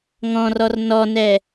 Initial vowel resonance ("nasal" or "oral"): nasal